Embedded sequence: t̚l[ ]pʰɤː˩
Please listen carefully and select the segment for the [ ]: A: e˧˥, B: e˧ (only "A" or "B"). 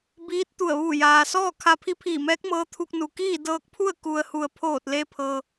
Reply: B